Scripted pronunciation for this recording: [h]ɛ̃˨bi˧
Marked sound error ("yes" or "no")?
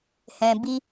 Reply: no